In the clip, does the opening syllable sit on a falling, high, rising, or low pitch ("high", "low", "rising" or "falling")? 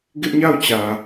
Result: high